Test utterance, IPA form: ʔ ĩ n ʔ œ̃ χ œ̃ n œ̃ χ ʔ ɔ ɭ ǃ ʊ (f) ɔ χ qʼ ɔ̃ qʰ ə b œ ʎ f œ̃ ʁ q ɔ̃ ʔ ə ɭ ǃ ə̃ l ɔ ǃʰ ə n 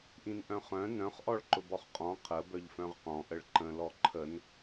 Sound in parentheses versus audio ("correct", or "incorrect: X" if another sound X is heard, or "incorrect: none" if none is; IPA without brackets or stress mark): incorrect: b